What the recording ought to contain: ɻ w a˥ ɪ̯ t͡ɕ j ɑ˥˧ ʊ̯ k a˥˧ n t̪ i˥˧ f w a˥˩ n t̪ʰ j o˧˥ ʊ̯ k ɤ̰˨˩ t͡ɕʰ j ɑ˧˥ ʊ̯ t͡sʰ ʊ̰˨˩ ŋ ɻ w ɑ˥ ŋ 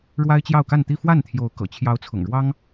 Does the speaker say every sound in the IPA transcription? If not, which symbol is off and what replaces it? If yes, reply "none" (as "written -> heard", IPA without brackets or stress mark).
none